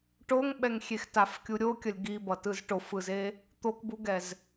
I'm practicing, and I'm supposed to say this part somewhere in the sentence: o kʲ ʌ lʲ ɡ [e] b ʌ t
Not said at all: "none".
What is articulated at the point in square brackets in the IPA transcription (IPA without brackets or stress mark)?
i